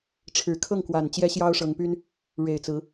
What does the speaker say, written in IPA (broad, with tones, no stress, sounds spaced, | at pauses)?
ʈ͡ʂʰ ɻ̩˨˩ kʰ ɤ˥˩ ŋ k w a˨˩ n t͡ɕ j ɛ˥ ɕ j ɑ˥ ʊ̯ ʂ ɤ˧˥ ŋ p y˥ n | ɻ e˨˩ ɪ̯ t͡s ɹ̩˧˥